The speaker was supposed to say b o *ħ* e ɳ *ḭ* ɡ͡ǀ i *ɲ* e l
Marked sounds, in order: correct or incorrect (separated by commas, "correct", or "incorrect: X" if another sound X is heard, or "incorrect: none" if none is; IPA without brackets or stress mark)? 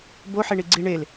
correct, incorrect: i, incorrect: ɳ